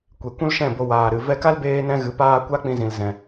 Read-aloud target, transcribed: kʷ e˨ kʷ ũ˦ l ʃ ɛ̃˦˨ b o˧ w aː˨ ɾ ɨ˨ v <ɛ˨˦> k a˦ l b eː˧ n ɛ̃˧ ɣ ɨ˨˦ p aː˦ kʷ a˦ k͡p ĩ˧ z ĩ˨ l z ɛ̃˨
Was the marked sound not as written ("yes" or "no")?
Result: yes